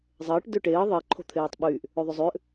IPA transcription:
zˤəːʈ dʏʈeː ðˤe ǃʰo̤t̪ʰeːtˤɓyːʔ | øðˤʏzˤʏːʔ

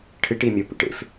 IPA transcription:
ʈʰɨʈimʲopṵʈ ḛf

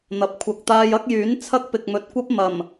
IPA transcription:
n̪ɐ˨p̚ kʷʰɐ˨k̚t̪aː˧jɐ˥k̚jyː˨˥n t͡sʰɐ˥k̚pɪ˨k̚mɵ˨t̚kʷɐ˥p̚ mɐ˨˩m

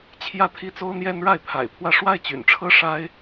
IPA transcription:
t͡ɕʰjä˥t̪ʰi˥ t͡so˥ʊ̯n̪jɛ˥n ɻa˥˩ɪ̯pʰa̰˨˩ɪ̯pʰwä˥˧ ʂwa˥˩ɪ̯t͡ɕy̰˨˩nʈ͡ʂʰɤ˥ ʂa˥ɪ̯

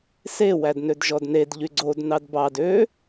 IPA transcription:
se wædnødʒɔdned ʎyɡ͡ǀod nɑdbɑd ø

